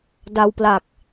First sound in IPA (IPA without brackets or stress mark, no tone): d